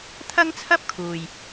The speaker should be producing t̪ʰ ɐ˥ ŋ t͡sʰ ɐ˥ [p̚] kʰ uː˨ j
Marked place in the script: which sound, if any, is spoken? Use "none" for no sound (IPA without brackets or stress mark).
p̚